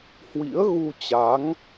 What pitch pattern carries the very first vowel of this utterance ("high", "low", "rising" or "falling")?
rising